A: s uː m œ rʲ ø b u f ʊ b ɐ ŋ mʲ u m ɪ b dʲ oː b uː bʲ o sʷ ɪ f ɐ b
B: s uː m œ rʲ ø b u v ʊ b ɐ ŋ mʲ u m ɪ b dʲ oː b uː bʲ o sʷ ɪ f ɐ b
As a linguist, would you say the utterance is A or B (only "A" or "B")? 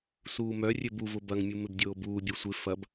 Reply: B